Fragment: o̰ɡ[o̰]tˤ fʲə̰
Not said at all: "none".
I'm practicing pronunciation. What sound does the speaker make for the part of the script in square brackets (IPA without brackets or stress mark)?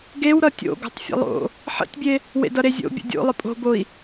o̤